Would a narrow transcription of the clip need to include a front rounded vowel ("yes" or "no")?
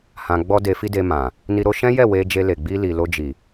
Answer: no